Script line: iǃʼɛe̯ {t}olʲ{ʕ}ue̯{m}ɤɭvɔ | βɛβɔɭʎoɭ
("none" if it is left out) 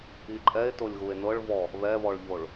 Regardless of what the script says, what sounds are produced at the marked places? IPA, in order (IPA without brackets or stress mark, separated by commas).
t, ɣ, n